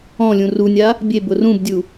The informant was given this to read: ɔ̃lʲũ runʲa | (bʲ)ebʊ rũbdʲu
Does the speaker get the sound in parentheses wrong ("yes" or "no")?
no